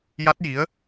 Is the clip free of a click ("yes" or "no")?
yes